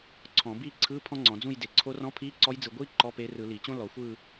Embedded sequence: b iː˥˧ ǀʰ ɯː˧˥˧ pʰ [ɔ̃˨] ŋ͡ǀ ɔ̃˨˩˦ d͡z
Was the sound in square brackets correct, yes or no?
no